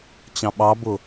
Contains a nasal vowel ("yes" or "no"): yes